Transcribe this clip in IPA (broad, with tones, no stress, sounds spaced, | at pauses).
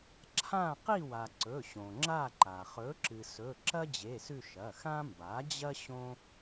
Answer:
ǁʰ ã˦˨ q i˦˨ w a˩ ǀ ɵ˩˧˩ ɕ õ˩ ŋ͡ǁ a˦˨ ǃ a˩ χ ɵ˩˥ ǁ ɨ˩ s ɵ˩˧˩ ǁ ɐ˥ d͡ʑ e˩˧˩ s ʉ˦˨ ʃ ɐ˩˧˩ x ã˥ m b a˩˥ d͡ʑ ɐ˥ ɕ õ˥